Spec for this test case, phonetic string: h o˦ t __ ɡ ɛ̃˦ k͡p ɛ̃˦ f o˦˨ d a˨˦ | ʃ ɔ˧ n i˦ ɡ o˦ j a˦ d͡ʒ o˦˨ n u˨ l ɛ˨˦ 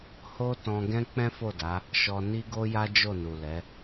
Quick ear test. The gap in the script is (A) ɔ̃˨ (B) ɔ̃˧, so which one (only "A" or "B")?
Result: B